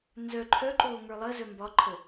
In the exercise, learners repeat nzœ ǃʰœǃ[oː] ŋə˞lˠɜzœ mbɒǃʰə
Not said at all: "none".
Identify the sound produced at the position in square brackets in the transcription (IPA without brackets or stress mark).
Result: oː